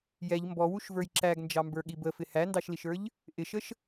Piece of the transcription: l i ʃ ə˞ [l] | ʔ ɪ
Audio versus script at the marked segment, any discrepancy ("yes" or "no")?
yes